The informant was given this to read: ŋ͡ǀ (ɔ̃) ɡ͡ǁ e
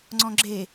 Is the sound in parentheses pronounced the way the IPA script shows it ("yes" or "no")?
yes